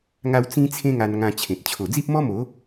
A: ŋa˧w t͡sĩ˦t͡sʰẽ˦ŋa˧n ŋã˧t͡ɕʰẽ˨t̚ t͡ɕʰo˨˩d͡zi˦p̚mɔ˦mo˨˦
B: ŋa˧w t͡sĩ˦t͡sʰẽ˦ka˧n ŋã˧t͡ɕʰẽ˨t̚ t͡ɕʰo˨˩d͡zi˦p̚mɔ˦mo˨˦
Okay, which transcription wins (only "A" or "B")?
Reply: A